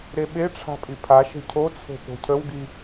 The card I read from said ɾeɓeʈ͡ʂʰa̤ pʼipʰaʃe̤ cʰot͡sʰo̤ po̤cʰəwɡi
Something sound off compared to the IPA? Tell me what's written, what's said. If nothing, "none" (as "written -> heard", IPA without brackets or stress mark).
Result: none